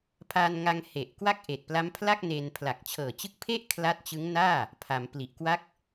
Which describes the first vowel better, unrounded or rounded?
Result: unrounded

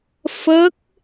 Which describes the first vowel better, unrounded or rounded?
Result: unrounded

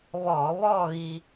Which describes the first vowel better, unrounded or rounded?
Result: rounded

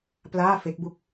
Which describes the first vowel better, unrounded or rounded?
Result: unrounded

